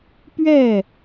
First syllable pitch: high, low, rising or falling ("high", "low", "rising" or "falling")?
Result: falling